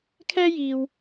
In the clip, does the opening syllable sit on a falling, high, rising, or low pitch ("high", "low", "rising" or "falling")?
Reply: high